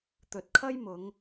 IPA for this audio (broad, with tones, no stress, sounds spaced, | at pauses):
t̪ ɵ˨ t̚ kʰ ɐ˥ j m ʊ˨˧ ŋ